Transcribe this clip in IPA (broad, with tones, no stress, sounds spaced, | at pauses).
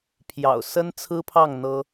pʰ j ɑ̰˨˩ ʊ̯ s ə˦ n t͡sʰ ɹ̩˦ pʰ ɑ˥˨ ŋ n̪ ɤ˦